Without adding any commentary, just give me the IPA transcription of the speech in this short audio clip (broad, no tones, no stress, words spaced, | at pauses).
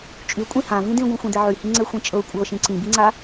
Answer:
t͡ʃʼy kʷʼĩhãvĩ dĩɡʷĩxʷĩd̪ɛ ʕyhĩ ŋ͡ǀɛxʷĩt͡ʃʼɤ kʷʼɤ ʃĩǀĩbiŋ͡ǀa